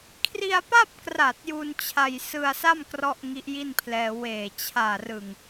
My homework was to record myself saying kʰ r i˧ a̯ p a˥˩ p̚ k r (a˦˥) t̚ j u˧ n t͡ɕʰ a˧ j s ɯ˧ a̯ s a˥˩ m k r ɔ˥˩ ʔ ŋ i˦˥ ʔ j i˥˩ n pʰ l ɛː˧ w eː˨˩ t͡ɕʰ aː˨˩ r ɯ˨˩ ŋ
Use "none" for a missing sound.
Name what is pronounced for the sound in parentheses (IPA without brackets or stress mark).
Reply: a˨˩